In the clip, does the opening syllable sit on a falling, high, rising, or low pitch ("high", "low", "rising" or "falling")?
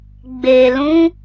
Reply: low